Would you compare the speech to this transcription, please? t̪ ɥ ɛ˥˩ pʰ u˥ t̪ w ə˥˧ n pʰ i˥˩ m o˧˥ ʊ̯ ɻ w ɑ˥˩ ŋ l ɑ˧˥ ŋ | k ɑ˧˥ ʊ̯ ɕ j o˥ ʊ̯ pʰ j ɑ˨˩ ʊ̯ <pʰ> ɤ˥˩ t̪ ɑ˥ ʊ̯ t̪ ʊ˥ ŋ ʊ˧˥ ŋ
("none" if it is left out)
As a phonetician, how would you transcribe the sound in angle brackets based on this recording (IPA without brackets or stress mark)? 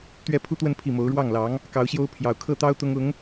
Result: kʰ